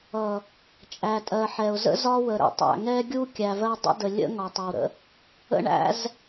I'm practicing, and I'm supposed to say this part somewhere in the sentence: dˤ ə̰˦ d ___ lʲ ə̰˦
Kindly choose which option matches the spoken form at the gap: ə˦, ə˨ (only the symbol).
ə˨